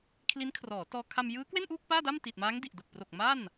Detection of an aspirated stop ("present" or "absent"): present